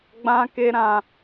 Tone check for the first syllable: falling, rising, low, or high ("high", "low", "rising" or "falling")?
high